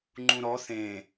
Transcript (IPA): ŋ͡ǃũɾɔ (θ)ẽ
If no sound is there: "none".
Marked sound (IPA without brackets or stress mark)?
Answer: θ